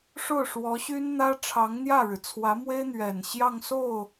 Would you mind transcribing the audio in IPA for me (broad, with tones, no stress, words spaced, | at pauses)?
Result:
ʂo˥˩ʊ̯ ʂwɔ˧˥ɕy˥nn̪ä˥ ʈ͡ʂʰɑ˧˥ŋn̪jä˥˩ɻɻ̩˩ t͡sʰwä˧˥mwe˥ɪ̯n̪ɥɛ˨˩n ɕjɑ˥˧ŋso˥˩ʊ̯